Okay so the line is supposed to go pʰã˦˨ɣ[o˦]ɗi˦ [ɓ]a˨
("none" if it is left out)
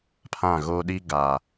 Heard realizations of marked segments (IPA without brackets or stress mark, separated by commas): o˦, ɡ